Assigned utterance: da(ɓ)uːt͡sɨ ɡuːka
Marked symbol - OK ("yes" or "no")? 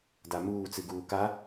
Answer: no